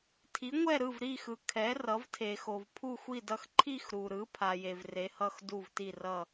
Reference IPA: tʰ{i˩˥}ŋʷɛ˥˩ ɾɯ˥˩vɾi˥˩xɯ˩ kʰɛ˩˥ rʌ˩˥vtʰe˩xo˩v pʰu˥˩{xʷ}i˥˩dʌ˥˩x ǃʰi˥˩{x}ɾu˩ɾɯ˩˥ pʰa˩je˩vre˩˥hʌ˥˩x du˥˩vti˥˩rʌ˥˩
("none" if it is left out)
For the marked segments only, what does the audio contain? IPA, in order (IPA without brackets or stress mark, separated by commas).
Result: i˩˥, xʷ, x